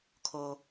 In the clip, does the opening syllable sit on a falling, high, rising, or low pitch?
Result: low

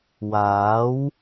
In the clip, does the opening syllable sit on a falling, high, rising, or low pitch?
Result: rising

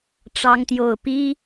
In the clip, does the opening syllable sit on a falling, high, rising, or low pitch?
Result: high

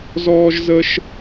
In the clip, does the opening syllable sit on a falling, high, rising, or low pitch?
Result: high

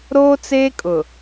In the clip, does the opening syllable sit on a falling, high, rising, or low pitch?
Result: high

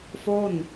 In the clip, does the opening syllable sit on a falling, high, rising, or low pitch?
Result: falling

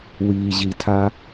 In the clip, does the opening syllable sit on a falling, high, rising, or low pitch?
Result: low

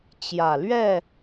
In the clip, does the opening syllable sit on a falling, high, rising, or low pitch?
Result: low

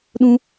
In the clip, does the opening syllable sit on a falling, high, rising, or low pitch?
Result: high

